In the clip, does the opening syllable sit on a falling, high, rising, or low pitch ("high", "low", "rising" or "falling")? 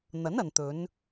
rising